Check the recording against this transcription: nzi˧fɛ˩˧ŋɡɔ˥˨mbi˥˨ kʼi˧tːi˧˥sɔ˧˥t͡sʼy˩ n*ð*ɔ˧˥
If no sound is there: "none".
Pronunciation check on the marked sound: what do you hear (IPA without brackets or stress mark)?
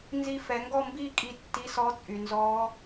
z